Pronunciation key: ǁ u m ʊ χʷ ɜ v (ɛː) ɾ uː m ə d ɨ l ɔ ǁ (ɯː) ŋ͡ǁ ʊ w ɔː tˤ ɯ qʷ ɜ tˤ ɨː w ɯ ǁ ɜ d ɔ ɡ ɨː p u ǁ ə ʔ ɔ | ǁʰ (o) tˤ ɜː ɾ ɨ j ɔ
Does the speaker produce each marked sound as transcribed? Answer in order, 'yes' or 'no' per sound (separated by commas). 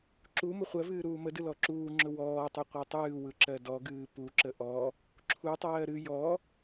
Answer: no, no, no